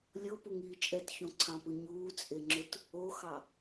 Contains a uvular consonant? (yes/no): no